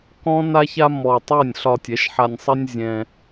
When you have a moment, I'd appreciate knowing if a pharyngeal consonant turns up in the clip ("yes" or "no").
yes